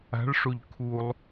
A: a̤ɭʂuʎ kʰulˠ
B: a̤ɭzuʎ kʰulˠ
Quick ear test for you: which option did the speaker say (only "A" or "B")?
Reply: A